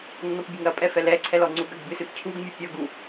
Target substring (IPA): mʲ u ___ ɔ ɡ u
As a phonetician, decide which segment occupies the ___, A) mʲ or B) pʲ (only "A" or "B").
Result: B